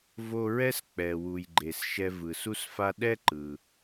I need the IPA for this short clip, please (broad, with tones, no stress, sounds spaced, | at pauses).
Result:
v o˧ ɹ ɛ˥ s k͡p ɛ˩ w u˩ j ɡ͡ǃ e˩ s ʃ ɛ˧ v ɯ˩ s u˥ s f a˥ ɗ ɛ˥ ǃ ɯ˩